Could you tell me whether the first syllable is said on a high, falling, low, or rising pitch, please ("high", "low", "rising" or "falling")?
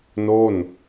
falling